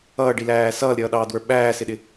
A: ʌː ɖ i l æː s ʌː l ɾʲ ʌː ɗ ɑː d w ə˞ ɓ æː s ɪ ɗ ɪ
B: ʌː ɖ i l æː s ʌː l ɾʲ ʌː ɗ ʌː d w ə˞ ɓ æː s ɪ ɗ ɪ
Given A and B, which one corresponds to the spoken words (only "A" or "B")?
A